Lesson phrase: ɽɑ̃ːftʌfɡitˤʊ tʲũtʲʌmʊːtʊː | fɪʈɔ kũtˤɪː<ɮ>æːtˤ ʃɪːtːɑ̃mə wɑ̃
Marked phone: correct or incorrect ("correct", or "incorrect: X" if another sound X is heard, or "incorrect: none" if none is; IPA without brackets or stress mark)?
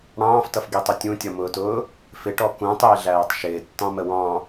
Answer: correct